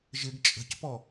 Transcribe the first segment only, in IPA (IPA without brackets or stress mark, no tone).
ʒ